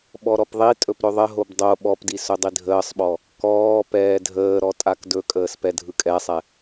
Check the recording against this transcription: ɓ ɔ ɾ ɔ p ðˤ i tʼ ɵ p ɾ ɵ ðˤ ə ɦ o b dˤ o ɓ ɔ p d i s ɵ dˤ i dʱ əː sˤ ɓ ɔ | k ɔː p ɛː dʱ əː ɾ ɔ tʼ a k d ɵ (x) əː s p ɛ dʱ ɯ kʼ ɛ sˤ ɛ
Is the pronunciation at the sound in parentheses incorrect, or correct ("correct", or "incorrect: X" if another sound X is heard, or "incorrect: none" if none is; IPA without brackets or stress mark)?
incorrect: kʼ